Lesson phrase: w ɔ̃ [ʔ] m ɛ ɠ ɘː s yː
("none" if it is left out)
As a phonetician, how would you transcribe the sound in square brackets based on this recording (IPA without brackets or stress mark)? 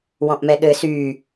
ʔ